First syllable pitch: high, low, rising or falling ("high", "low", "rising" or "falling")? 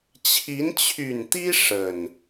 rising